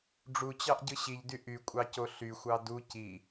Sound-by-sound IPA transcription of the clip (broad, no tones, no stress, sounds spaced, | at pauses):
ɖ͡ʐ u t͡ɕ ɑ ʔ ɟ ɯ ɕ i ʎ d y ʔ y kʷʼ ɑ c o ɬ y xʷ ɑ d u c i